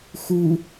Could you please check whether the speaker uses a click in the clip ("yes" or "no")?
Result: no